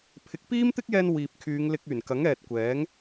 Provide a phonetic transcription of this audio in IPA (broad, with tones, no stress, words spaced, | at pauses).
pʰɪ˨˥k̚piː˥mt̪ɪ˥k̚jɛː˧n wiː˨p̚ kʰyː˨˧ŋlɪ˧k̚yː˨˩n kɐ˨˥ŋɛː˨t̚kʷɛː˨˥ŋ